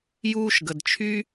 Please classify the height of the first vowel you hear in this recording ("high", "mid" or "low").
high